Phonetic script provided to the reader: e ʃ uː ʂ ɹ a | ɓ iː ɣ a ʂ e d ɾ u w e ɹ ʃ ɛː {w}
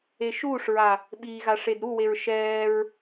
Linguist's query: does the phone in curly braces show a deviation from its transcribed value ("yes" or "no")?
yes